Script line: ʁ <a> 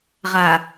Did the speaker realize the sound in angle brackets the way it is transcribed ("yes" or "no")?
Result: yes